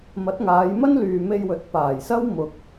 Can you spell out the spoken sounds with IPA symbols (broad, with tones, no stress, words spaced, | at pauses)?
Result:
mɐ˨˥t̚ŋaː˨˧jmɐ˥n lyː˨me˧jwɵ˨˥t̚ paː˨˩jsɐ˥w mʊ˨k̚